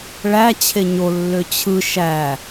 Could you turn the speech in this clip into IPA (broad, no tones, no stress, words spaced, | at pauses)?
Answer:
ɭæt͡ɕʰe ɲolːø t͡ɕʰɯ ʃæ